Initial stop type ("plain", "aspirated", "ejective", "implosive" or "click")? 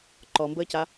click